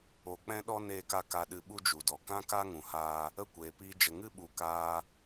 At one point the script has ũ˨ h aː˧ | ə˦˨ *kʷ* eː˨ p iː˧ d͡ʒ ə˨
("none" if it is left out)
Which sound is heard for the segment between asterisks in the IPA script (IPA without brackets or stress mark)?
kʷ